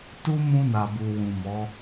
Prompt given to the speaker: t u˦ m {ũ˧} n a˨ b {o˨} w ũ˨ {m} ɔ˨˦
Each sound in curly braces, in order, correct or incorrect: correct, incorrect: u˨, correct

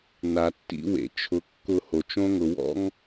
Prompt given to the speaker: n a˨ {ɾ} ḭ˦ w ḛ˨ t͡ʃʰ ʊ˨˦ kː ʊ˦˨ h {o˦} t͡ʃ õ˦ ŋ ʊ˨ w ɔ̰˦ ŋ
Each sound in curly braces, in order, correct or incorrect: incorrect: tː, incorrect: o˨

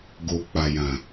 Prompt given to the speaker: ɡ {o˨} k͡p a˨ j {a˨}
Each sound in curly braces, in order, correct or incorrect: correct, incorrect: ã˨

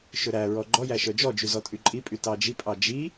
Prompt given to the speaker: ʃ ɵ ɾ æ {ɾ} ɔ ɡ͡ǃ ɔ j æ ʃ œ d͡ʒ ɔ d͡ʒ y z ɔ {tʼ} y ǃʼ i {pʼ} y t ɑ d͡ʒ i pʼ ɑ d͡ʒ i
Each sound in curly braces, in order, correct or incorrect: incorrect: ɹ, correct, correct

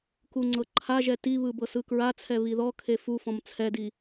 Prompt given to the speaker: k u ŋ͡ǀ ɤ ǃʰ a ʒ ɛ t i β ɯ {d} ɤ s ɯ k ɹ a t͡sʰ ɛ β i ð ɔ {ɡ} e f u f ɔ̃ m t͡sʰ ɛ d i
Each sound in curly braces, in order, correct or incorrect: incorrect: b, incorrect: kʰ

